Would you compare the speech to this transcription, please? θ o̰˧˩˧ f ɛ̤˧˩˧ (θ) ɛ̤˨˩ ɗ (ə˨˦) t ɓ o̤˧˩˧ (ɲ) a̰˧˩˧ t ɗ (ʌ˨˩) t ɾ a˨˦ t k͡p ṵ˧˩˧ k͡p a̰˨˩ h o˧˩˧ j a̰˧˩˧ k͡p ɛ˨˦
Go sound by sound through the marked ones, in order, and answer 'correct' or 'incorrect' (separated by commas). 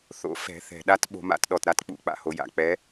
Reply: correct, incorrect, incorrect, incorrect